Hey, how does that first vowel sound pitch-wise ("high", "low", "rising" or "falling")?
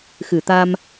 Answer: low